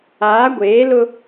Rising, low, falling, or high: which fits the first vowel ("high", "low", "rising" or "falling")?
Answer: rising